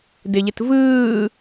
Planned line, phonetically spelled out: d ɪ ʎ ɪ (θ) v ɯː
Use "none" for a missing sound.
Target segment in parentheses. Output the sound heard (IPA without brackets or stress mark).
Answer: t